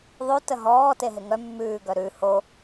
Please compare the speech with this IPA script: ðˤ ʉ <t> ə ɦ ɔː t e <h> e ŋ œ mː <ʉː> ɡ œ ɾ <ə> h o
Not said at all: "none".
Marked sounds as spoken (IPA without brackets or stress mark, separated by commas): t, ɦ, ʉː, ʉ